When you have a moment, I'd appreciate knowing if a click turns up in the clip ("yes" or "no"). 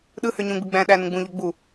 no